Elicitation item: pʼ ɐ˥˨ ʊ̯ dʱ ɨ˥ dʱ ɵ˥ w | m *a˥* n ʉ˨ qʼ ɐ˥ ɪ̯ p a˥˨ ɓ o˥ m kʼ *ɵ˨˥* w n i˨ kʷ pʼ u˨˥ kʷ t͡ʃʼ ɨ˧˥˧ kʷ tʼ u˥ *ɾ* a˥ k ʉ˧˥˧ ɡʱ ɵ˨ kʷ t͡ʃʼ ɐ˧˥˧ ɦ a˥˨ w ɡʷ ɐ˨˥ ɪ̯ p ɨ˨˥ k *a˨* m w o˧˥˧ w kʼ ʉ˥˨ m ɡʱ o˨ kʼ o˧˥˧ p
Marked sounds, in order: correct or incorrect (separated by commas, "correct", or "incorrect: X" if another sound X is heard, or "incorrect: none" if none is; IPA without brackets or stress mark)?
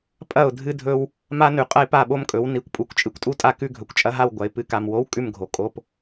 correct, correct, incorrect: tʼ, correct